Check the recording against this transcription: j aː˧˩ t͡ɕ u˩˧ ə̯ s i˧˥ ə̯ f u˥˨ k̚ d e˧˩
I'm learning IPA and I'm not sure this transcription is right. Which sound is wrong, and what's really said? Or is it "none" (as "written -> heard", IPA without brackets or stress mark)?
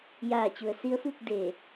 none